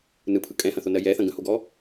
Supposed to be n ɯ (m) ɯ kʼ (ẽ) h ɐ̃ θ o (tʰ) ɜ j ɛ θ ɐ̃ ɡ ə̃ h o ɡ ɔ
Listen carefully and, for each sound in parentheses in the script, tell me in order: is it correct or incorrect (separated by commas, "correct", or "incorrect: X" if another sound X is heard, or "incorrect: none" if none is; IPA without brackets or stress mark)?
incorrect: pʰ, incorrect: ɛ̃, incorrect: n